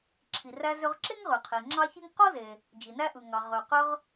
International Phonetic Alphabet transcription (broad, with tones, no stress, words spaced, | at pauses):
ǁʰi˨ræ˦zø˦ʁ ǁe˥ŋʁy˩qʰi˩ ŋ͡ǁɑ˥çi˥ŋ qo˥ze˩ | d͡ʒi˩næ˦ʔɯ˩ŋɑ˩ ʁø˨qø˦ʁ